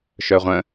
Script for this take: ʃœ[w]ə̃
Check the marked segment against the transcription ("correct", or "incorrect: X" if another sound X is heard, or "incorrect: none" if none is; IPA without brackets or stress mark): incorrect: ʁʷ